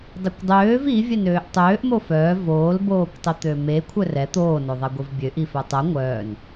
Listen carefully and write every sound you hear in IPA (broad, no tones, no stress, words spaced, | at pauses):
dˤikʷdˤøːv ivʲɛnøːʔ tˤøːʔ mofœː voːlboːkʷtˤit̪ø me kʷʰœrɛ t̪oːnoðˤɛ ɡʷivbʲøʔi fœtˤɛ ŋʷœːn